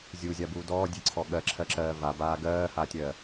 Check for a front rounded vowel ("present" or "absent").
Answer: absent